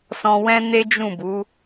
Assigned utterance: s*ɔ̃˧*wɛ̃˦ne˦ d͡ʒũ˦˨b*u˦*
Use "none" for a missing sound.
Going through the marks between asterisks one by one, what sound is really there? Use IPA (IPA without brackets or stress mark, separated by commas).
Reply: ɔ̃˧, u˨˦